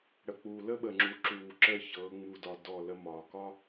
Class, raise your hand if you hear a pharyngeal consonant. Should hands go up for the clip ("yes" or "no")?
no